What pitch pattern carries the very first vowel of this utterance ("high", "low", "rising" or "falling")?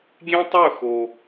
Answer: high